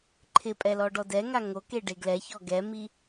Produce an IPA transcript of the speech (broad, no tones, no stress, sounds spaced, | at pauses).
ǃʰ ɪ pʼ ɛ l ɔ ɖ ɔ d ɛ ŋ a ŋ o k e ɖ e ɡ l ɛ ç ɔ ɡ ɛ m i